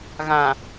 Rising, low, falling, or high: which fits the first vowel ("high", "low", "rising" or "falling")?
low